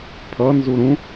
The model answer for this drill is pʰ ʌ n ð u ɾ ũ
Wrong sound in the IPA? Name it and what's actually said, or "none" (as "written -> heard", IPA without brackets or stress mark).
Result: ð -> z